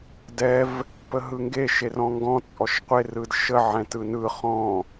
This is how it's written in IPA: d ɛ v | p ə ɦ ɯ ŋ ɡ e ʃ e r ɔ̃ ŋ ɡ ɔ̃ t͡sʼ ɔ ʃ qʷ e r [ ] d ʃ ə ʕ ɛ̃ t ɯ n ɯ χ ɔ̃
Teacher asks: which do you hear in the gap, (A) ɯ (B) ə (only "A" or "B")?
A